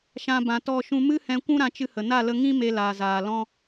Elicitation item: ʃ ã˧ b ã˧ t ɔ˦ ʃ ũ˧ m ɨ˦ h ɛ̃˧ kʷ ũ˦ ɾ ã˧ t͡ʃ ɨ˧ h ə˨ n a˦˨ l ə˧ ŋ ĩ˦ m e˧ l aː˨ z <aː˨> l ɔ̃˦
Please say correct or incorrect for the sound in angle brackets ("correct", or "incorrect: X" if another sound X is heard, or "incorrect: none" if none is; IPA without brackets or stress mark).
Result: correct